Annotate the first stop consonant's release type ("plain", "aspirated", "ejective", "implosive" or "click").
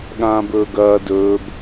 implosive